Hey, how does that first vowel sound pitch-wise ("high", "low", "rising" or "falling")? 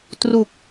low